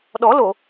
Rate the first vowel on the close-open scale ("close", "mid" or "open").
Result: mid